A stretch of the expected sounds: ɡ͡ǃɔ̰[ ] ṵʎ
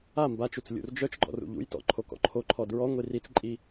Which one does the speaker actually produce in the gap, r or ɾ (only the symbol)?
r